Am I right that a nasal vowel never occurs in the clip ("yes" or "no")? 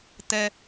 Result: yes